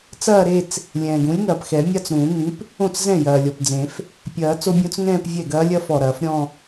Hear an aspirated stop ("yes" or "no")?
no